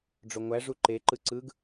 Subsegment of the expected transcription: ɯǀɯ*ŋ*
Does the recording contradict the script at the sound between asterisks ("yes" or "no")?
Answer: yes